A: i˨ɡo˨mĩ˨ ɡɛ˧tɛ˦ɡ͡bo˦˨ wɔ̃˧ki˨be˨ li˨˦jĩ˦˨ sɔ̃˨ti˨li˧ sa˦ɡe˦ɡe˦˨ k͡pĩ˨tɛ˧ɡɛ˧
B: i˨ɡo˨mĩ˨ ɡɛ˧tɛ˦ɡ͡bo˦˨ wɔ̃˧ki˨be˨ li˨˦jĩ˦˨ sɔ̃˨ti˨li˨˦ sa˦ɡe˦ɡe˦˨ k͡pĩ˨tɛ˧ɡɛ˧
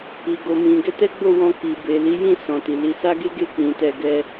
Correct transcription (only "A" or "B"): B